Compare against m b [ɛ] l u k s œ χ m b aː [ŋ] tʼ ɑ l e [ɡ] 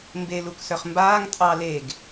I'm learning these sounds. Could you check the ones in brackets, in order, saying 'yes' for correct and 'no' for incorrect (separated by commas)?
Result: no, yes, yes